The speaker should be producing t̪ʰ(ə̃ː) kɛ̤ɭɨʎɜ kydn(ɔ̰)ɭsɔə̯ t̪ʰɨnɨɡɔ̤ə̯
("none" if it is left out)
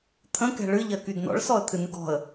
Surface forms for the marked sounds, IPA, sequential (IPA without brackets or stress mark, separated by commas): ə̃, ɔ̰